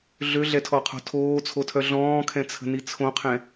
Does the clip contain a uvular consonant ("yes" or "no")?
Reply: yes